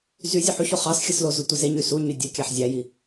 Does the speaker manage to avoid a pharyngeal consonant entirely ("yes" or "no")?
no